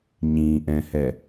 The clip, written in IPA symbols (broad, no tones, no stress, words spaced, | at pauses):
ɲĩʔɛ̃hɛ